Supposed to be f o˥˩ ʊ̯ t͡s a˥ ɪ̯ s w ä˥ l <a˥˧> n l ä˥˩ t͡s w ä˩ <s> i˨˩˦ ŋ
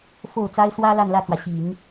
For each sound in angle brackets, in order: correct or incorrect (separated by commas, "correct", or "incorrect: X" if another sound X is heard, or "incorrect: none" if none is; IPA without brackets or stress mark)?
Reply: correct, incorrect: ɕ